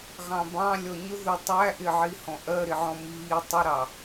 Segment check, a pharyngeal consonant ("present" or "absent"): present